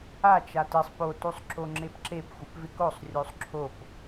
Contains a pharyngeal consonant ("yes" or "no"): no